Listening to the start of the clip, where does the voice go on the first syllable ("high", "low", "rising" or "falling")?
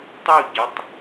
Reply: falling